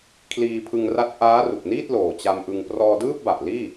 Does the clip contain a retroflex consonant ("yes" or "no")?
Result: no